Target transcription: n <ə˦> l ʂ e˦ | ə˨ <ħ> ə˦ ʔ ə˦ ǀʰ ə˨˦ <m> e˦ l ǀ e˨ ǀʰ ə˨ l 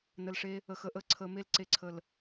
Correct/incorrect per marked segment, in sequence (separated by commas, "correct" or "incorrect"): incorrect, incorrect, correct